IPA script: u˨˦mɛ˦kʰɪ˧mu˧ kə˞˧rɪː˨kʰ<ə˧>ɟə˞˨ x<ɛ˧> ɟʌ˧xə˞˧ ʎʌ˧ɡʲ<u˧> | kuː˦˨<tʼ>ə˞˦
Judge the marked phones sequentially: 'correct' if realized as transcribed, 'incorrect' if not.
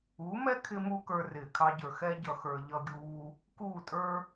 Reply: incorrect: ɑ˧, incorrect: ɛ˦, incorrect: uː˧, correct

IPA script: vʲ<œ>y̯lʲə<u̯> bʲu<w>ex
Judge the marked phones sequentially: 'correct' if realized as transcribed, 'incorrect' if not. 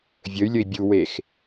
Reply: incorrect: ə, incorrect: i̯, correct

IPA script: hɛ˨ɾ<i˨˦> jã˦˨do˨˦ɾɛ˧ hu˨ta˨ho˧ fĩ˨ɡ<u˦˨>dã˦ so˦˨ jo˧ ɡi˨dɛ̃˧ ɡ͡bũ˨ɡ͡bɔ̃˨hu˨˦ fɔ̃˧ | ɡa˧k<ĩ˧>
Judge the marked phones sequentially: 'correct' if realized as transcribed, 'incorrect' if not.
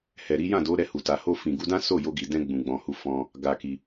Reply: correct, incorrect: u˧, incorrect: i˧

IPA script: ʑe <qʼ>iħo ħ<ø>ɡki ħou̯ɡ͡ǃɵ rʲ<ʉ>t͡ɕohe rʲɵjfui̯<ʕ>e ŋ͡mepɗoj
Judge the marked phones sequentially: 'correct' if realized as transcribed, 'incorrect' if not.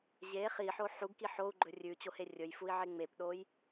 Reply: incorrect: χ, incorrect: u, correct, correct

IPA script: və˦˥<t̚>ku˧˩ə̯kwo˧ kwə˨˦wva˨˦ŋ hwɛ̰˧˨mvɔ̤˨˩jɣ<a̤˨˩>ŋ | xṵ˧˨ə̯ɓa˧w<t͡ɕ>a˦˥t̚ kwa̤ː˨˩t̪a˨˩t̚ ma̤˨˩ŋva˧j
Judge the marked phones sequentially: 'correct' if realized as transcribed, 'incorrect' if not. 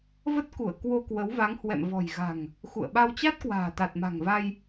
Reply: correct, correct, correct

